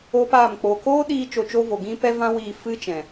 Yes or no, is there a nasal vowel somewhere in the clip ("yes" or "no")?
yes